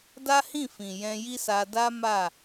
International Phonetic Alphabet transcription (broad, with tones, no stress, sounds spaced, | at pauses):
d a˦ h ĩ˦˨ f ĩ˨ j ɛ̃˧ j i˦ s a˧ d a˦ m a˦˨